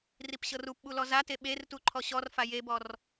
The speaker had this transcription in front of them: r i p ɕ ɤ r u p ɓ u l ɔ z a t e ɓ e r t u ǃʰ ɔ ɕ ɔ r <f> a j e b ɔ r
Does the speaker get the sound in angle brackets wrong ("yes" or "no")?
no